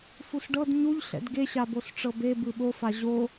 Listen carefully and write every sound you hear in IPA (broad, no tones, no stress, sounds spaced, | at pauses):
f u s ɖ ɤ d ɲ u ʎ ɬ ɛ̰ d ɡ e ɕ a b o s ʈ͡ʂ ɤ b e b ɯ ɓ o f a ʑ o